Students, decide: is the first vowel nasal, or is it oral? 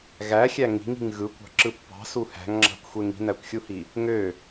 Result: oral